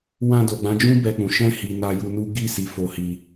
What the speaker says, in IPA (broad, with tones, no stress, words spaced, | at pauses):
wã˧do˨ɡ͡bã˨˦d͡ʒũ˦ bɛ˧k͡pũ˨ ʃɛ̃˧hi˨ na˧ju˧nu˦ ɡi˦˨ si˨˦fo˧hi˧